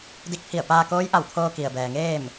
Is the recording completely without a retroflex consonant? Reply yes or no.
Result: yes